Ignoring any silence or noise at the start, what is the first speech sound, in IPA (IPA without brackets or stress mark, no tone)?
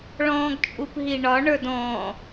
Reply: ɭ